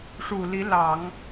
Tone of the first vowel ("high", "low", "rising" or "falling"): low